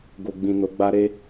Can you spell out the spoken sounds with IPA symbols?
ɡ o˨ ɡ͡b ĩ˨ n o˨˦ ɡ͡b a˦ ɾ e˦

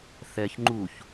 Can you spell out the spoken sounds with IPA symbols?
θ ɛ ç ŋ͡ǃ u ç

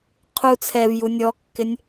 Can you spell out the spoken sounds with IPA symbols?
qʰ u t͡sʰ ɛ v j u nʲ ɔ kː ɪ nʲ

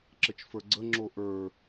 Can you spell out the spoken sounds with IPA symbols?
ǁ ə t͡ʃ f ə˞ ɡ͡ǀ ə ŋ͡ǁ o ʔ ə˞

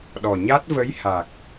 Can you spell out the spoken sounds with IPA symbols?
ɗ ɔ˨˩ ɲ a˦˥ t̚ v ə˧˥ j h a˨˩ k̚

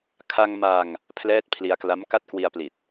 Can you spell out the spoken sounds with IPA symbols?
kʰ a˧ ŋ m a˧ ŋ | pʰ l ɛː˦˥ t̚ pʰ l i˧ a̯ k l a˦˥ m k a˦˥ t̚ k w i˧ a̯ p l i˨˩ t̚

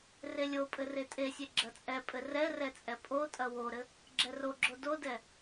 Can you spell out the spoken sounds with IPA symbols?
r e lʲ o pʼ ɘ r e tʼ e sʲ e ɡ͡ǁ ɐ t͡sʼ ɛ pʼ ɘ r ɛ r ɛ t͡sʼ ɛ pʼ o tʼ ɐ w o ɾ ɘ | ɡ͡ǁ ɛ r o ɡ͡ǁ o d o d ɛ

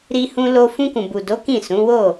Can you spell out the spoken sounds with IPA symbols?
ɾ i˧ h ũ˧ l o˧ f ũ˧ k ũ˨ b u˨ d o˨˦ k ĩ˦˨ s ũ˨˦ w o˦˨

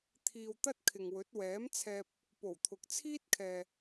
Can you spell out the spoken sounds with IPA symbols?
t̪ʰ iː˧ w t̪ ɐ˥ t̚ kʰ ɪ˨ ŋ w ɵ˨˥ t̚ w ɛː˨˥ m t͡sʰ ɛː˧ p̚ | p o˨˩ w t̪ʰ ʊ˨ k̚ t͡sʰ iː˥ t̚ kʰ ɛː˨

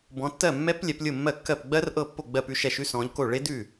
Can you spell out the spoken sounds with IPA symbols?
b ɔ̃˨˦ tː ɜ˥˩ mː ɛ˦˥ p lʲ ɛ˨˦ p lʲ ʊ˥˩ mː ɜ˥˩ kː ɜ˥˩ p ɡ͡b ɜ˦˥ r ʔ ɤ˥˩ pː o˥˩ ɡ͡b ɜ˥˩ p ʉ˥˩ ʃ ɛ˥˩ ʃ ʉ˦˥ s ɔ̃˨˦ ʎ k o˥˩ ɭ e˦˥ d ʉ˥˩

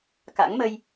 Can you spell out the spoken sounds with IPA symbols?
k a̰˧˥ ŋ m ə˧ j

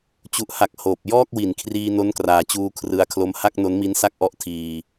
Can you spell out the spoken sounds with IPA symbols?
t͡ɕ u˨˩ ʔ h a˨˩ k̚ h oː˨˩ p̚ j ɔː˥˩ k̚ w i˩˦ n kʰ r iː˧ n o˦˥ n k r aː˨˩ t͡ɕ uː˧ kʰ r ɯ˧ a̯ kʰ l o˦˥ m h a˥˩ k̚ n o˦˥ n m i˦˥ n s a˥˩ k̚ ʔ ɔ˦˥ ʔ tʰ iː˧

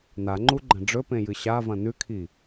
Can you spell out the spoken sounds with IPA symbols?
n̪ a ŋ͡ǃ u ɡ͡ǃ ɐ̃ ɖ͡ʐ ɵ p ẽ j ɨ ɕ a v ɐ̃ n̪ ʉ kʰ i

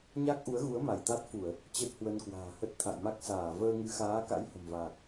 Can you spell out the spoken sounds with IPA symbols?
ɲ a˦˥ k̚ ʔ u˨˦ ə̯ ɣ u˨˦ ə̯ m a˧˩ j t̪ a˦˥ t̚ f u˧˩˨ ə̯ | t͡ɕ ə˦˥ t̚ h w ə˧ n k w a̤ː˨˩ h ə˦˥ t̚ t̪ʰ a̰˧˨ j m a˦˥ k̚ s aː˧˩ v əː˧ ŋ ɨ˨˦ x aː˨˦ k a̰˧˥ j h ə̤˨˩ m v aː˨˩ k̚

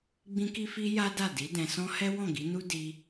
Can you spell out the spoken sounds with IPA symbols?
ɡ͡b ĩ˧ k i˧ f i˧ j a˦ d a˦˨ d i˨˦ d ɛ̃˧ s ɔ̃˦ h ɛ˦ w ɔ̃˦˨ ɡ i˨˦ n u˦ d i˧

